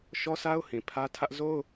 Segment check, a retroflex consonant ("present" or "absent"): absent